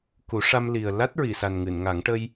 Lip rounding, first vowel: rounded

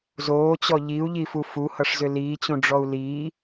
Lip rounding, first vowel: rounded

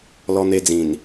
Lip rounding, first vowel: rounded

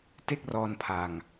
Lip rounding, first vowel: unrounded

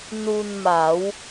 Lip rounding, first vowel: rounded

